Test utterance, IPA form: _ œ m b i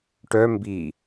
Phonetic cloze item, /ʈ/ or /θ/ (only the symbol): ʈ